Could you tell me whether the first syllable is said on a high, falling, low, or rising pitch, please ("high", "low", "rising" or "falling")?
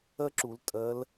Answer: high